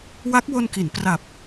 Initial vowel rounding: unrounded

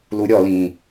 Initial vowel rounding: rounded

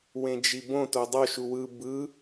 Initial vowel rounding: unrounded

